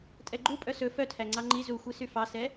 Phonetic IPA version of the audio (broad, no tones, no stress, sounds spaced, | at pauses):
tʼ ɛ ɡ͡ǃ u pʼ œ s ɵ f œ tʰ æ ŋ͡ǀ ɑ ŋ͡ǃ i z u xʷ i s y f ɑ s ɛ